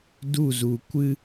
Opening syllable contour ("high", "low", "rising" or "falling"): falling